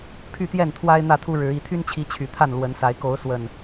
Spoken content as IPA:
pʰ y˥˨ t̪ j ɛ˥˨ n t̪ʰ w a˦ ɪ̯ n̪ ä˥˨ t̪ʰ u˦ ɻ ɻ̩˨˦ i˨˩ t̪ʰ y˦ n t͡ɕʰ i˨˦ t͡ɕʰ y˨˩ t̪ʰ a˥˨ n l w ə˨˦ n s a˨˦ ɪ̯ k o˨˦ ʊ̯ s w ə˨˩ n

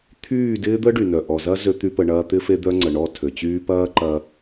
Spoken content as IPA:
t̪ʰ yː˦˨ d ɪː˦ d̪ ə˦ ɖ y˨ n œ˨ ʔ ɔ˨ z ɐ˦ z ø˦ t̪ y˦ p ə˧ ɳ ɐː˦ t̪ ɪ˦ f e˦ d̪ œ˦ ŋ͡ǀ ə˨ ɳ ɔ˦˨ tʰ ø˨ t͡ɕ yː˦ p ɐː˦ ǃ ɐ˧

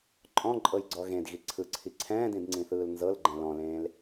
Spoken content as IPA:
ǃʼ ɔ̃ ǃʼ ɤ j ɡ͡ǀ ɔ ɣ ẽ d ɣ i ǀʰ ɯ ǀʰ i ǀʰ ɛ̃ː d ĩ d ŋ͡ǀ ĩ θ ɯː l n z ɤ l ɡ͡ǃ ɛ̃ l ɔ̃ l ẽː l

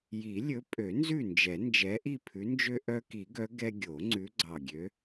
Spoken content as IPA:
j i˨˩˦ lʲ ɵ˨˦ pʼ ø˨˩˦ n z ʉ˥˨ n d͡ʒ ɛ˨˩˦ n d͡ʒ ɛ˨˦ ʔ i˥˨ pʰ ʉ˨˦ n d͡ʒ ø˦ ʔ œ˦ k i˨˩˦ ɡ œ˨˦ ɡ ɛ˦ ɡʲ o˨˩˦ ŋ͡ǀ ʉ˨˦ ɡ͡ǀ ɑ˨˩ ɡʲ ø˨˦

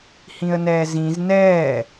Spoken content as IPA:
h ĩ ə̯ n ɛː z ĩ z n ɛː

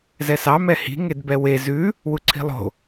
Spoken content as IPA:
z ɛ s ɑ m ɛ h i̤ ŋ e d b ɛ w e z ʉ | w u ǀʰ i̤ lˠ o̤

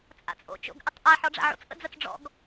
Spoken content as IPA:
t͡sʼ a̰ t͡sʼ o̰ t͡ʃ o̰ ɡ ʔ ɪ tˤ ʔ a ħ ɔ ɖ͡ʐ a̰ ʕ o̰ t͡s ʔ ə̰ d͡z ə t͡s ɖ͡ʐ ɔ̰ ɡ

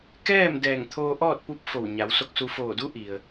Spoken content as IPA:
k ɛː˥˨ m d ɛː˧˩ ŋ t̪ʰ oː˧ ʔ ɔː˥˨ t̚ p u˧˥ p̚ f o˧˩ w ɲ a˩˧ w s o˧ k̚ s u˧ f oː˧˩ d u˧˥ ʔ i˩ ə̯

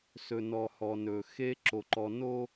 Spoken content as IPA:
s ɵ˨ n ɔ˨ h ɔ˨ n ɵ˨ x e˦ ǁ o˨ ǃ ɔ˨ n o˦

